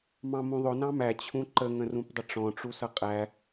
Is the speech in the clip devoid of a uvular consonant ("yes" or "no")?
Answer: no